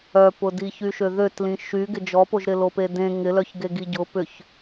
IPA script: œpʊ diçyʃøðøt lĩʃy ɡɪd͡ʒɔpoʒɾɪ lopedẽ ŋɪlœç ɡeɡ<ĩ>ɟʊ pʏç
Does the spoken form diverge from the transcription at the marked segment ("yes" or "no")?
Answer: yes